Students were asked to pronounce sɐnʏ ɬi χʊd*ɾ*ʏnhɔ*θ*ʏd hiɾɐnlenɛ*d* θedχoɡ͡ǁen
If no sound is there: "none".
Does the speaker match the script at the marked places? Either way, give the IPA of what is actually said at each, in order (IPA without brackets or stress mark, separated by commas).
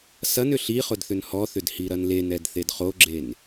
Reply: θ, θ, d